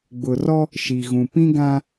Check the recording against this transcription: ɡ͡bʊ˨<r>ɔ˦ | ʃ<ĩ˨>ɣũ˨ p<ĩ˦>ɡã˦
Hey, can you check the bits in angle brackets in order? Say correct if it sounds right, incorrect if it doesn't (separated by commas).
correct, incorrect, correct